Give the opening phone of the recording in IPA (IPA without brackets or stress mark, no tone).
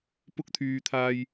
p